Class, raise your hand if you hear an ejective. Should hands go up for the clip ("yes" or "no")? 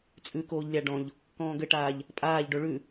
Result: yes